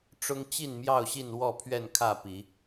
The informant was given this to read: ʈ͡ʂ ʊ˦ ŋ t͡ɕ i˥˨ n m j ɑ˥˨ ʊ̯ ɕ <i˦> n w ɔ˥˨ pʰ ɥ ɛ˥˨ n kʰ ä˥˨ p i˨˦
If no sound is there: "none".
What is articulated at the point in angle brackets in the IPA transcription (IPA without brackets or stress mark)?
i˥˨